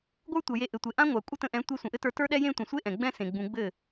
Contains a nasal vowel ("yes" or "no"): yes